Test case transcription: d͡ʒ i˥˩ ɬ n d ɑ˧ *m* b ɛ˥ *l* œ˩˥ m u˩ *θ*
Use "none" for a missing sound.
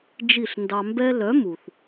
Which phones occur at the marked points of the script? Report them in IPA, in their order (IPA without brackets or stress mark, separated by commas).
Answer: m, l, θ